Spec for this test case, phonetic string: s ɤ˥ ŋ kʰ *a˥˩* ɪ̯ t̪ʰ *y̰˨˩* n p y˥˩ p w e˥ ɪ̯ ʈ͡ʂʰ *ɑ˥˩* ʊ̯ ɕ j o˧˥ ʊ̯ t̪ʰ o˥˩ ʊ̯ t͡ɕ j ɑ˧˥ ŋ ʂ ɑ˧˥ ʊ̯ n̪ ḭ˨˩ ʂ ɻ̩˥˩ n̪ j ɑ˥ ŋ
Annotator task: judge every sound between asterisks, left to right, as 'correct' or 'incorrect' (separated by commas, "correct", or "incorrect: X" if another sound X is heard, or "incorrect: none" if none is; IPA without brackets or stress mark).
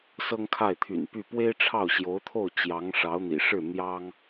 correct, correct, correct